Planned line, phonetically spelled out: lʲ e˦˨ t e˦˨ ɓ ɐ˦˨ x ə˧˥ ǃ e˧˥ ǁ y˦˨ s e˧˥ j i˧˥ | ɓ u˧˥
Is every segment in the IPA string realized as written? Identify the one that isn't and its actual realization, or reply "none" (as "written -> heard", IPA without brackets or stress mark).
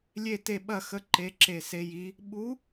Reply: y˦˨ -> e˦˨